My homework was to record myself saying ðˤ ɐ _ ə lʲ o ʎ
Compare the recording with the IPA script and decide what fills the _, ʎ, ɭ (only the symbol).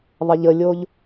ʎ